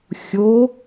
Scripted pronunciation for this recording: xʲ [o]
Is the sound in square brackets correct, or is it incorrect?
correct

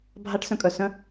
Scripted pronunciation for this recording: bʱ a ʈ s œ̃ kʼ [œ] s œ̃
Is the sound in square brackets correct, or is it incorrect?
correct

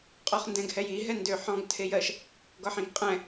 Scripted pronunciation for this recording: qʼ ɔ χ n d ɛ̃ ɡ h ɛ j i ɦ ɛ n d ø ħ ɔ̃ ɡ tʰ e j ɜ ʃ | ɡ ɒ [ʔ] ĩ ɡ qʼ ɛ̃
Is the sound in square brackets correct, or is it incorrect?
incorrect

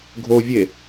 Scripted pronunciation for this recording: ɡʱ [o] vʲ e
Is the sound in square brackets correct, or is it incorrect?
correct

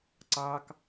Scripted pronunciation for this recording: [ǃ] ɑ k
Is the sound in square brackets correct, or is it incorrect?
incorrect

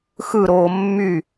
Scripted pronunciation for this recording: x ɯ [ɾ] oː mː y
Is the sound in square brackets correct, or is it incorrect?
correct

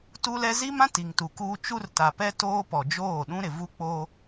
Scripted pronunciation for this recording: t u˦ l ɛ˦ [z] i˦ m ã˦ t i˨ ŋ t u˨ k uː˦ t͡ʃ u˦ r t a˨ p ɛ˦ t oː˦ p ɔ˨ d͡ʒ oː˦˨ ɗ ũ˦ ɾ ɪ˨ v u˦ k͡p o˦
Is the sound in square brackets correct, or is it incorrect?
correct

